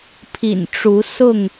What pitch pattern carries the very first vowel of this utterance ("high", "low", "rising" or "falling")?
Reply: low